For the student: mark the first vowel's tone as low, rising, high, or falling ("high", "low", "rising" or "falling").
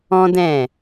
high